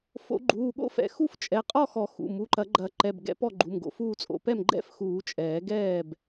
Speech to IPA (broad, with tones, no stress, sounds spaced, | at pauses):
f o̰˨˩˦ ɡ͡ǃ uː˩˧˩ ɠ o̰˥˨ f ɛ̰˩˧˩ x u˥˨ f t͡ʃʼ ɛ˩˧˩ qʼ ɔ˥˨ x ɔ˨˩˦ x ṵ˩˧˩ m u˩˧˩ ǃ ɐ˨˩˦ ɡ͡ǃ ɐ˨˩˦ ǃ ɛ˩˧˩ b ɡ ɛ̰˨˩˦ p ɔ˥˨ ɡ͡ǃ u˩˧˩ m ɡ o̰˨˩˦ f uː˥˨ t͡sʼ o̰˩˧˩ p ɛ˥˨ m ɡ͡ǃ ɛ̰˥˨ f x uː˨˩˦ t͡ʃʼ ɛː˨˩˦ ɡ ɛː˥˨ b